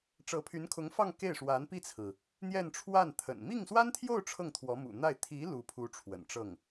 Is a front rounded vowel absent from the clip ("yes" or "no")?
no